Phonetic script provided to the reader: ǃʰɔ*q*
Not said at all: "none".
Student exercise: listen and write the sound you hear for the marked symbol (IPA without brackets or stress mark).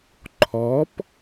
p